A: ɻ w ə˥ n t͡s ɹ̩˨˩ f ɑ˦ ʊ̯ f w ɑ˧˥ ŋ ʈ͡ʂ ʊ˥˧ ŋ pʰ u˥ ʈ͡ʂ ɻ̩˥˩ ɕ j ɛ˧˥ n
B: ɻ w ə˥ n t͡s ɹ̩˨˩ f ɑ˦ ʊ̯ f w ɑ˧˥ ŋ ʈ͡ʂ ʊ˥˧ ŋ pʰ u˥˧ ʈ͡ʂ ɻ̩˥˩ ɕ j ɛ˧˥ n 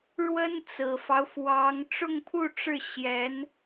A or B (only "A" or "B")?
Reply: B